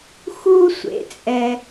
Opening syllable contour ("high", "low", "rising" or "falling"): high